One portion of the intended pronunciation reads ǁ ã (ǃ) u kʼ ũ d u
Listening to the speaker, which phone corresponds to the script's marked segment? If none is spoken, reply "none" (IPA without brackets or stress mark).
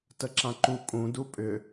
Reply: ǃ